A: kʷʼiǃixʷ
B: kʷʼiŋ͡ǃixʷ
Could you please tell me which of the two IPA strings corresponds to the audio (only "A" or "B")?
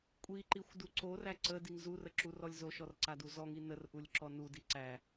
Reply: A